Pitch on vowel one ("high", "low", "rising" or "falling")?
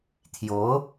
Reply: rising